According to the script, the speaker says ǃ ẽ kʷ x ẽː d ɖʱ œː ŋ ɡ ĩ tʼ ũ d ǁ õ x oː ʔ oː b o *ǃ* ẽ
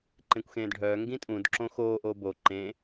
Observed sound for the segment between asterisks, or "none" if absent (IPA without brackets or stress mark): ǃ